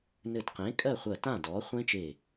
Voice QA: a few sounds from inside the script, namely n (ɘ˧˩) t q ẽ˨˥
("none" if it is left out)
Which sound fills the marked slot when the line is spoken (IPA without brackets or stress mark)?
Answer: ɘ˧˩